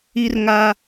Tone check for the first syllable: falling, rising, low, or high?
high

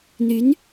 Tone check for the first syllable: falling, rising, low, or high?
rising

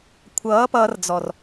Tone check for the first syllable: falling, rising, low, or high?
rising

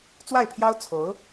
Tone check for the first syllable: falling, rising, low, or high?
falling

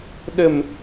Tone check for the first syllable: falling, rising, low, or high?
low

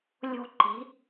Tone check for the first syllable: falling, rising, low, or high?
high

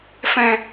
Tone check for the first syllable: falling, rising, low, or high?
low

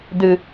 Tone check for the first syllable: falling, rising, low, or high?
low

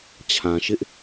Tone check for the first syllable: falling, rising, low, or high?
low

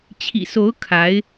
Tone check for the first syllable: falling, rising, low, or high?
low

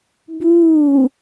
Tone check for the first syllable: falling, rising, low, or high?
falling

